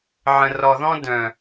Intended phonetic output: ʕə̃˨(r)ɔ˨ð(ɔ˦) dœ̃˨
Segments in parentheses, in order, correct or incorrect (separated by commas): correct, incorrect